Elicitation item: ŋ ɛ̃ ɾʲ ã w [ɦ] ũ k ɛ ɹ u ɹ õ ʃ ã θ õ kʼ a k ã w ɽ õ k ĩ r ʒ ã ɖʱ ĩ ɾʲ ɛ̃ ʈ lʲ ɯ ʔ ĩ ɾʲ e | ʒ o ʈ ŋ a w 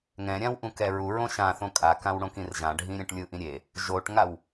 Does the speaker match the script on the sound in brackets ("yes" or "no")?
no